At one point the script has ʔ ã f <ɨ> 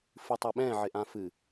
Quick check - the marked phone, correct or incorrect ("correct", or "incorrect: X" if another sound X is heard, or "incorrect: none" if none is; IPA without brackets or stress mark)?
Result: correct